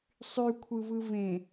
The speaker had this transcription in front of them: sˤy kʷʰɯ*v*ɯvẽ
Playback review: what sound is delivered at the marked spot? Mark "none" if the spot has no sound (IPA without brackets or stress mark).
v